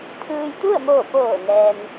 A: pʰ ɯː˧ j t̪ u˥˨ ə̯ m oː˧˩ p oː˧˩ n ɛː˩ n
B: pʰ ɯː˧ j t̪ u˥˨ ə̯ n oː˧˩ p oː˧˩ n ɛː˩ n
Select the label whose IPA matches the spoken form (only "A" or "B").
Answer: A